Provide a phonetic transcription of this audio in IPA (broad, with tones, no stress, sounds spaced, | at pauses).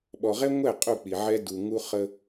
ɓ ɔ˨ ʁ ɛ˦ ŋʷ ɛ˦˨ qʼ u˦˨ k͡p i˨ ʕ ɛ˦ d u˨ ŋ u˦ χ ə˦